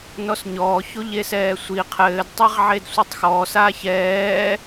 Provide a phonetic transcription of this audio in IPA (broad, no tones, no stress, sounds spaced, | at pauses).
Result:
n ɔ s ɲ ɔː ç o ʎ e s ɛː sʷ i qʰ ɘː d tˤ e ʁ ʕ e d sʷ ɨ tˤ x ɔː s aː ç ɛː